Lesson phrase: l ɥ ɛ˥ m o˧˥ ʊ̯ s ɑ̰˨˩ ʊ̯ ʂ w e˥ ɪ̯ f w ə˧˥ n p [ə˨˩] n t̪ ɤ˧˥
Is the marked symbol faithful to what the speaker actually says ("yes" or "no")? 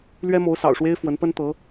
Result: no